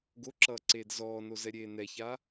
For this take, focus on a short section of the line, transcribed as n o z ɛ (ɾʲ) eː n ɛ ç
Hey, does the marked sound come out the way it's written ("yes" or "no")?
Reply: yes